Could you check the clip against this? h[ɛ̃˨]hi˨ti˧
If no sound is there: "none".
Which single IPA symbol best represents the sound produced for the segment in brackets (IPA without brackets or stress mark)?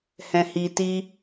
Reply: ɛ̃˨